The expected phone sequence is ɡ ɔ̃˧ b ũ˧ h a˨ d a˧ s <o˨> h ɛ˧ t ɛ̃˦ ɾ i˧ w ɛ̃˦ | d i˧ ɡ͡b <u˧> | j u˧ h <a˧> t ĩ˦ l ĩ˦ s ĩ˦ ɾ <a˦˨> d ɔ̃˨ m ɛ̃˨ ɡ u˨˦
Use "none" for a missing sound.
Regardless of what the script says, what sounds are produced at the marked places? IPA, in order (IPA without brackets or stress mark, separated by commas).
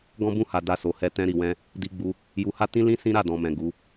o˨, u˧, a˦, a˦˨